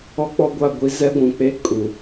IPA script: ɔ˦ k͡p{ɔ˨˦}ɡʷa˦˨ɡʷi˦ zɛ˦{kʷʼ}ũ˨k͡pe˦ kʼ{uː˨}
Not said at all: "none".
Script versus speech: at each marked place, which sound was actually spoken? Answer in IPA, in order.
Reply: ɔ˦, ɡʷ, u˨

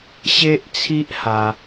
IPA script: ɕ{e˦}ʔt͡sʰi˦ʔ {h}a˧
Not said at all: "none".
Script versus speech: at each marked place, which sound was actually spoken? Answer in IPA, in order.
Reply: e˦, h

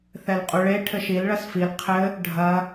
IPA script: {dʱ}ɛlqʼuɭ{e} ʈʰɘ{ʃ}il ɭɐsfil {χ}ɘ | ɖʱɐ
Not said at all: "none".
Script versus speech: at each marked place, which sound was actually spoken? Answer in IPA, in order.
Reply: θ, e, ʃ, qʰ

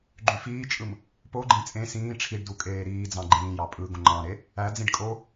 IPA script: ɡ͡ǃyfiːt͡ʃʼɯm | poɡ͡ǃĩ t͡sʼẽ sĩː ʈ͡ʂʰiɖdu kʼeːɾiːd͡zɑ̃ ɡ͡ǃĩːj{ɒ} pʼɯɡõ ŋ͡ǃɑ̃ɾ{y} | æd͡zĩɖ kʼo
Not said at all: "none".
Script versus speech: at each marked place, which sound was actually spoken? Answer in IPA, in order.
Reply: ɑ, e

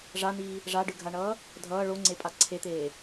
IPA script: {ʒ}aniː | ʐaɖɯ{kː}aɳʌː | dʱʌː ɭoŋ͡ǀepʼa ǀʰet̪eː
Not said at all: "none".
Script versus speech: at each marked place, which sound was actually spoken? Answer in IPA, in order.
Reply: ʐ, ɡʱ

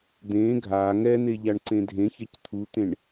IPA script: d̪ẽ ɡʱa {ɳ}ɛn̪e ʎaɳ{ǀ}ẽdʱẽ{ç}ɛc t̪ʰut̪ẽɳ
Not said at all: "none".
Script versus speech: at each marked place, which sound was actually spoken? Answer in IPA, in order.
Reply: ŋ, ǀ, ç

